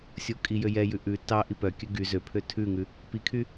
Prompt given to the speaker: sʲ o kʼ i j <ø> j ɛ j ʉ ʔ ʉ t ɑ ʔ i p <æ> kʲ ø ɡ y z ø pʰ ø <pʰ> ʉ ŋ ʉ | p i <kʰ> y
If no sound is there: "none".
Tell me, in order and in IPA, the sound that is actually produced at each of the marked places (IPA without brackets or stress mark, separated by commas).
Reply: ø, œ, tʰ, kʰ